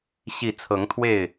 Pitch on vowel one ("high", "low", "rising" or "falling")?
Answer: low